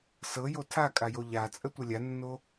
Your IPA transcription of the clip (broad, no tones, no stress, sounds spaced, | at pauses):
s ɤ j o tʰ a kʼ a j o ʎ a t͡sʼ ə tʷ ɤ lʲ a nː o